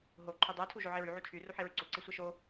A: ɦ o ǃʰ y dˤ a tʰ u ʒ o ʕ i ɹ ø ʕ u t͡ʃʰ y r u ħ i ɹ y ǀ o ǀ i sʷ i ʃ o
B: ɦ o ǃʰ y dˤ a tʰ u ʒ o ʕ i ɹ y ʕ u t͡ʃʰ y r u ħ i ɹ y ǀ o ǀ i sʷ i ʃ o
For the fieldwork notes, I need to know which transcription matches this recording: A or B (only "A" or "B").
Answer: B